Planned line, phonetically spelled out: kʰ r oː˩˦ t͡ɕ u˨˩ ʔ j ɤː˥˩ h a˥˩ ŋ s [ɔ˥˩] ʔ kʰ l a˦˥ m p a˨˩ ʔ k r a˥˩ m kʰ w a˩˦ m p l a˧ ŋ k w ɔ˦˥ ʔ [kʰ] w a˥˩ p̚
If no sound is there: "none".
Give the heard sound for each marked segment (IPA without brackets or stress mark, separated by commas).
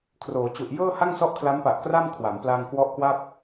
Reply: ɔ˥˩, k